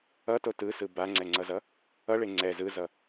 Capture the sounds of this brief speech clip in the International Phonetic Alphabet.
ʌ t o t ɯ s ɯ b a ŋ͡ǀ ɛ ŋ͡ǀ ʌ z ʌ | ʌ ɭ e ŋ͡ǀ ɛ z ɯ z ʌ

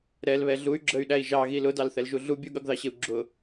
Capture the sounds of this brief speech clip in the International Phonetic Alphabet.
ɾ ɛ l β ɛ ɮ u y̯ ɡ͡ǁ ə y̯ ɗ æ i̯ ʒ ɑ ɣ i l ʊ d ɑ l θ ɛ l ʒ u ɮ u bʲ u ɠ ʌ ɡ ð ɑ ɕ ɪ u̯ ɡ͡ǁ ʊ

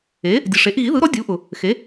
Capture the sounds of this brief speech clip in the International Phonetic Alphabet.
e˩˥ | dʲ ɯ˩ ʂ e˩˥ ʔ ɣ i˩˥ ð ɯ˩˥ ɾ ɔ˩˥ dʲ u˩˥ ʔ ʊ˩ | x e˩˥

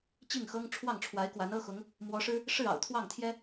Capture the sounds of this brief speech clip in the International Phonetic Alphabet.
t͡ɕ i˥˩ ŋ x ɤ˥ ŋ ʈ͡ʂʰ w ɑ˥˩ ŋ ʈ͡ʂʰ w a˧˥ ɪ̯ k w a˧˥ n ɤ˥ x ʊ˧˥ ŋ | m w ɔ˧˥ ʂ ɻ̩˥ | ʂ ɻ̩˥˩ ɑ̰˨˩ ʊ̯ t̪ʰ w ɑ˥˩ ŋ t̪ʰ j ɛ˥

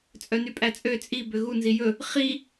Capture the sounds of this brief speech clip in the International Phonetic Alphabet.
t͡sʼ œ n y pʼ æ t͡sʼ ø t͡sʼ i b ø ɣ u n z i j ɵ | χ i

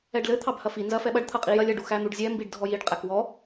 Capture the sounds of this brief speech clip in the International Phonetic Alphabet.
ɛ ɖ l ɘ t̪ʰ ɑ b h ɐ f i n z ɐ f ɛ ɓ ɐ ɖ t̪ʰ ɐ qʼ i j ɐ lʲ ɐ ɖ u x æ n̪ u ɖ zʲ ɛ m b i ɖ dʱ ɔ j i ɖ qʼ æ k w ɔ

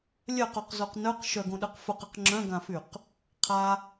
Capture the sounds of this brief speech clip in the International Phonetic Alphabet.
lʲ œ q o q z o q n œ q ʃ œ ɡ õ ɗ œ q f ʊ q ɐ q ŋ͡ǁ œ̃ ɡ ã f y q | qʰ a

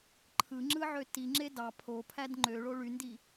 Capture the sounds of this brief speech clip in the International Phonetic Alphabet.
ǃʰ ɯ ŋ͡ǁ ɯ ʕ ø t i ŋ͡ǁ e d ɑ pʰ o pʰ æ d ŋ͡ǃ ø ɭ o ɭ y n d i

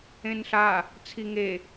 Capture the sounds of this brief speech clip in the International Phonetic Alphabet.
ẽ n ɬ a | t͡sʰ i ŋ e

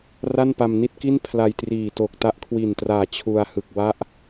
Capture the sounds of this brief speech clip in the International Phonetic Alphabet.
r a˥˩ n p a˧ m n i˥˩ t̚ k i˥˩ n pʰ l a˧ j t r iː˨˩ t o˨˩ k̚ t a˦˥ ʔ kʰ w i˨˩ n t r aː˨˩ t͡ɕʰ u˧ a̯ h ɯ˨˩ k̚ w a˦˥ ʔ

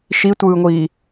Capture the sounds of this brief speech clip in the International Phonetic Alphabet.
ʃ i tʷ ɯː ŋʷ iː

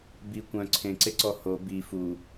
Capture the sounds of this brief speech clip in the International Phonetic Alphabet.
b i kʷ œ̃ ǀʰ ẽ ǀ e ǀ ɔ h o b i f u

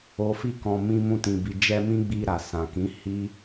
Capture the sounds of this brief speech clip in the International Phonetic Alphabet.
o˨ f i˧ k ɔ̃˨ m ĩ˧ m ũ˧ t ĩ˨ b i˨ d͡ʒ ɛ˧ m ĩ˦ ɡ͡b i˧ ɾ a˨ s ã˨ k ĩ˨˦ h i˦

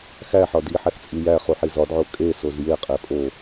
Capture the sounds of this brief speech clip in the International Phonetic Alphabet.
x æ ħ ɒ d i ħ æ x t͡sʼ i j æ χ u ħ i z ɒ d ʕ o kʼ e s o z j e qʼ e pʼ o

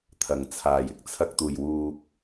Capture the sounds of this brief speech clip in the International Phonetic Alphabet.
t̪ʰ ɐ˨˩ ŋ t͡sʰ aː˨˩ j ɪ˧ k̚ t͡sʰ ɐ˧ k̚ t̪ uː˨˩ j w uː˨ k̚

